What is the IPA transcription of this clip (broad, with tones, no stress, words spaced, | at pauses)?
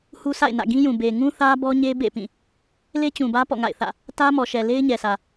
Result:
hu˦sʰa̰˦˨ɪ̯nä̰˦˨ ɡĩ˦jũ˨ be˨ŋũ˦θä˦bɔ˦ ɲe˦bḛ˦˨pĩ˦˨ | le˦t͡ɕũ˨bä˦ pɔ̰˦˨ŋa̰˦˨ɪ̯θä̰˦˨ | tä˦ mɔ˨ʃɛ˨ le˦ɪ̯ɲɛ˨sä˨